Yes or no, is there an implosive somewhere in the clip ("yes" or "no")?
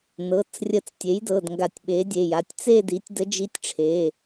yes